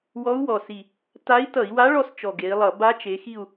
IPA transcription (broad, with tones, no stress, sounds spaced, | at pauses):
w ɔ˧˥ u̯ w ɔ˨˩ s i˨˩ | t a˧˥ i̯ t ʌ˧˩˧ i̯ w a˧˥ ɭ ɔ˦˨ s t͡ʃ ɔ˨˩ ɡ e˩˧ i̯ lˠ ʌ˧˩˧ b a˧˥ t͡ʃ e˩˧ x i˦˨ u̯